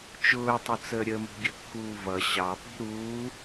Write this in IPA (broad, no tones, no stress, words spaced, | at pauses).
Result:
t͡ʃʊːtˤʊt͡səː ɾʲəmṳ ɡʲəkːuːvʌ ɕɑpi̤ ɾuː